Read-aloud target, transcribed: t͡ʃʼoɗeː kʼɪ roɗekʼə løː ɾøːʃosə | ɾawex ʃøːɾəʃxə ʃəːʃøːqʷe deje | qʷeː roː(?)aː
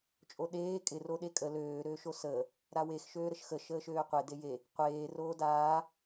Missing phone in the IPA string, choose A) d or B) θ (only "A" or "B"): A